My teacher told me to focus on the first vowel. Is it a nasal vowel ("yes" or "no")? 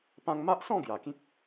yes